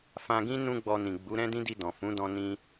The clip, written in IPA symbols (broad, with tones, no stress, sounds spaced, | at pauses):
f ã˧ ɡ ĩ˦ n ũ˦ ɡ͡b ɔ˧ n ĩ˨ ɡ͡b u˨˦ ɾ ɛ̃˦ d ĩ˦ d i˧ d ɔ̃˨ f ũ˨˦ d ɔ̃˧ n ĩ˦